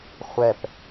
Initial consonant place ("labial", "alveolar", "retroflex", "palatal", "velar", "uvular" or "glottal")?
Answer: uvular